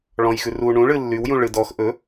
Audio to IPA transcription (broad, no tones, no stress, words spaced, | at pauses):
ɭɔ̃jxʉr u ɳũɭɨ lːywjũ ɭɨd ɔx ʔɵ